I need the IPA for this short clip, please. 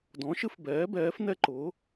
d ɔ̃˩˥ ʃ ɨ˦ f b ɛː˩˥ b ɛː˩˥ f n ɛ˦ ǃ ʊ˩˥

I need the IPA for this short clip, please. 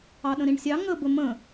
ɑ ɗ ə̃ ɾ ĩ ɳ sʲ ɑ ŋ ə b ə m ə̃

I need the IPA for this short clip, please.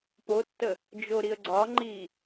p o tː ə | d͡ʒ o ɾ i ə̯ ɡ͡ǀ ɒ ŋ͡ǃ i

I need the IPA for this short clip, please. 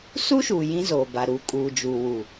s u˦ ʃ uː˨ j ĩ˦ z oː˨ b a˨ ɾ u˨˦ kʼ uː˨ d͡ʒ uː˨ w u˨

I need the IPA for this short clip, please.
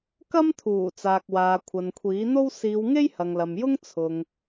k ɐ˥ m t̪ʰ uː˨˩ t͡s aː˨ k̚ w aː˨ kʷʰ ɐ˨ n kʷʰ iː˨˥ n̪ o˥ w s iː˨˧ w ŋ e˥ j h ɐ˨ ŋ l ɐ˨ m j ʊ˥ ŋ t͡sʰ ʊ˨ ŋ

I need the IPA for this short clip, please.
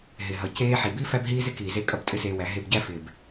ɦ ɪ˨ ɦ ʌ˨ c eː˦ ħ i˨ b i˦ f æ˦ b ɦ iː˦ z ɪ˦ k iː˨ z e˦ kʼ ʌ˦ b tʼ ɪ˦ s eː˧ w æ˨˦ ɦ e˧ b ɟ æ˦ f ɪː˨ b

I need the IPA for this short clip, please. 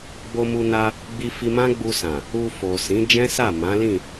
ɡ͡b o˧ m u˧ n a˧ | ɡ͡b i˧ f i˧ m ã˦ ɡ͡b u˧ s ã˨ | u˧ f o˨ s ĩ˨˦ d͡ʒ ɛ̃˦ s a˦˨ m ã˨˦ l ĩ˦˨

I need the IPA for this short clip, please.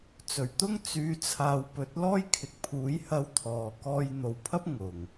t͡s ɵ˨˩ ɥ t̪ ʊ˥ ŋ t͡s yː˨ t͡sʰ aː˨ w p ɵ˨˥ t̚ l ɔː˥ j kʰ ɪ˨˥ k̚ pʰ uː˨˥ j h ɐ˧ w t̪ʰ ɔː˨ k ɔː˧ j n̪ o˨ w pʰ ɐ˥ p̚ ŋ ʊ˨˩ ŋ

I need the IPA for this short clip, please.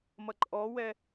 m ʌ ǃʼ ɔ w ɛ

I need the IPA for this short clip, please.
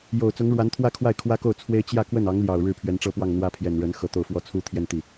j o˨˩ ʊ̯ t͡s ʊ˧˥ ŋ ɻ w a˧˥ n t̪ʰ w ä˥˧ kʰ w a˥˩ ɪ̯ kʰ w ä˥ k o˥˩ ʊ̯ t͡sʰ w e˥ ɪ̯ t͡ɕ j ä˥˧ k w ə˥˩ n ɑ˧˥ ŋ l j ɑ˨˩ ʊ̯ ɻ ɻ̩˥˩ pʰ ɥ ɛ˧˥ n ʈ͡ʂ ɤ˥ p w ɑ˥˩ ŋ n̪ w ä˥ pʰ j ɛ˨˩ n ɻ ə˧˥ n x ɤ˧˥ t̪ o˥˧ ʊ̯ f w ɔ˥˩ t͡sʰ u˥ t̪ʰ j ɛ˥˧ n t̪ i˥˩

